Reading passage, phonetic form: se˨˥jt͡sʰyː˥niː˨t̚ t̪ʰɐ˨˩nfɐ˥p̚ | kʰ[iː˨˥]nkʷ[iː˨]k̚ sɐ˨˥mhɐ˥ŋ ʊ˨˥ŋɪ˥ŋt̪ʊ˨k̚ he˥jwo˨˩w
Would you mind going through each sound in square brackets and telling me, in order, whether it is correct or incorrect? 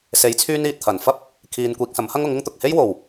incorrect: iː˨, correct

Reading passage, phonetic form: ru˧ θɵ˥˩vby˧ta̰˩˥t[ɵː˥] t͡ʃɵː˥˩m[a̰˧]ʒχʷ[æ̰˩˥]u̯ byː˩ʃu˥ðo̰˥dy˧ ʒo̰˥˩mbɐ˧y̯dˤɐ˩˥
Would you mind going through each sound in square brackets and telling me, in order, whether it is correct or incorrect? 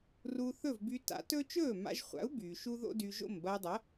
incorrect: ɵ˥, correct, incorrect: a̰˩˥

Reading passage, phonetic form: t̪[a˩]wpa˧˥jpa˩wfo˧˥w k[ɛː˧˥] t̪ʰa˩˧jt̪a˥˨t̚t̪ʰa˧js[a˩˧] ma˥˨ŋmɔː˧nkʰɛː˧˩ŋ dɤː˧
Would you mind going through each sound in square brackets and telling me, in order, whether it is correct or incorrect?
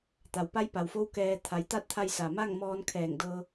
correct, incorrect: ɛː˧, incorrect: a˩

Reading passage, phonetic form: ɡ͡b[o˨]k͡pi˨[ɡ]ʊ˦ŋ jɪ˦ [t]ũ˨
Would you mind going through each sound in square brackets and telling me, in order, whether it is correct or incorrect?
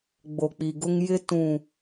correct, correct, correct

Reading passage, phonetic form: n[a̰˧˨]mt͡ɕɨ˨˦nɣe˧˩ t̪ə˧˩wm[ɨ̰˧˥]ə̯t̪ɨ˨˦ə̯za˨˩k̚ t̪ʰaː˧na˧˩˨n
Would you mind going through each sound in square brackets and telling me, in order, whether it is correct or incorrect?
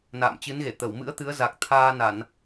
incorrect: a̰ː˧˨, correct

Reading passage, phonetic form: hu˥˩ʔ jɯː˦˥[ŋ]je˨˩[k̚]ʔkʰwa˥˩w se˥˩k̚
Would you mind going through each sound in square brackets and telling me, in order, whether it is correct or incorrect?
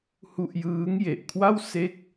correct, incorrect: none

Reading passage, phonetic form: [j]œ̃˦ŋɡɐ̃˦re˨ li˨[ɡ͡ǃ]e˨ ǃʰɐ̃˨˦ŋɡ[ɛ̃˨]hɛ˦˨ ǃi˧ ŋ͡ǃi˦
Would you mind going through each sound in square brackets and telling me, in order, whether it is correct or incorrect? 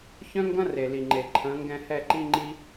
incorrect: ç, incorrect: ŋ͡ǃ, incorrect: ɛ̃˧

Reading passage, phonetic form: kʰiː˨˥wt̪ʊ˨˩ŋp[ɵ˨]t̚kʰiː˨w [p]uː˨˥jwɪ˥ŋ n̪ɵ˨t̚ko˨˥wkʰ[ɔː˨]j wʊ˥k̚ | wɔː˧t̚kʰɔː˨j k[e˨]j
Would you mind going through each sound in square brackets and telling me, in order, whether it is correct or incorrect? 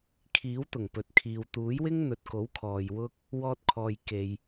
correct, incorrect: t̪, correct, correct

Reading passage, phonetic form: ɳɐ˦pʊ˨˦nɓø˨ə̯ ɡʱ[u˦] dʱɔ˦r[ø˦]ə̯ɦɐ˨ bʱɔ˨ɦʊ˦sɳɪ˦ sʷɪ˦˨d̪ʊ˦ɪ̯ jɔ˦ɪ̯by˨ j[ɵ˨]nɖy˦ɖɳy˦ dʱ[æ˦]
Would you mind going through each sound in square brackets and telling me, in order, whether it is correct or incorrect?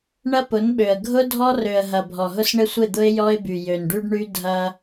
incorrect: ʊ˦, incorrect: ø˨, incorrect: ø˨, incorrect: ɐ˦

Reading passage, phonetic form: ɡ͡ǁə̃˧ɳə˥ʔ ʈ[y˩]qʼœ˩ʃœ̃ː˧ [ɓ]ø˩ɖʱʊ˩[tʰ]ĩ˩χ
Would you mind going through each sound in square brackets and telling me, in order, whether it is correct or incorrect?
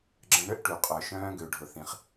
correct, incorrect: ɡ, incorrect: θ

